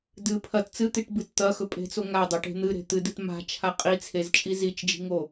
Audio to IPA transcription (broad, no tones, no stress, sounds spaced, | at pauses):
d ɨ pʰ ɐ t t͡s ɨ t̪ i ʈ b ɨ t t̪ ɐ x ɵ pʼ e̤ t͡s o ŋ a dˤ ɐ ʈ e̤ n̪ ɨ ɾ e̤ t̪ ɨ d ɨ t m a̤ t͡ʃʰ a qʼ i t͡sʰ e z t͡ʃʼ i z i t͡ʃ d͡ʒ i̤ ŋ o